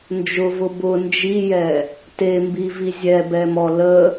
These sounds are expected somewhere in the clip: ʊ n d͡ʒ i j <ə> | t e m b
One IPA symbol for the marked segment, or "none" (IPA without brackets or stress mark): ɛ